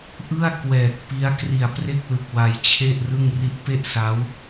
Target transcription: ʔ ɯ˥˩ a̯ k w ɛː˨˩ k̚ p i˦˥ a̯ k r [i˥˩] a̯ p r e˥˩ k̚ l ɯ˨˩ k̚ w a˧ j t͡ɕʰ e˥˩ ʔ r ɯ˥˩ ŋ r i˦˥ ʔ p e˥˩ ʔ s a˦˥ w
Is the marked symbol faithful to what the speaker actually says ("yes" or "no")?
no